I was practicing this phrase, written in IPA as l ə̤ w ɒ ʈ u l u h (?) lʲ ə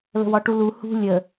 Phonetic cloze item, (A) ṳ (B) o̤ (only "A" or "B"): A